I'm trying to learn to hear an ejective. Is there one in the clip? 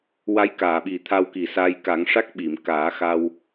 no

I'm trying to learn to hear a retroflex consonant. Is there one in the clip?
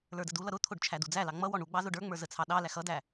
yes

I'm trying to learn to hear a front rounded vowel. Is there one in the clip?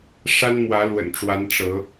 no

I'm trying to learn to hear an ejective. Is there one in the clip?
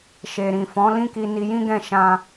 no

